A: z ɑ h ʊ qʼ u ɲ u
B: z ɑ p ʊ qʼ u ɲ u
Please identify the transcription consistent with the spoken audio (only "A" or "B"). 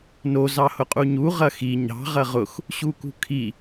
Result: A